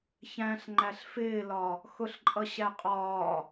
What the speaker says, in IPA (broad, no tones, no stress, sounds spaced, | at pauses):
ç æ̃ ɬ ŋ͡ǃ æ ɬ f ɪː l ɒ | x ʊ ɬ ǃʼ ʌ ɕ æ qʼ ɒː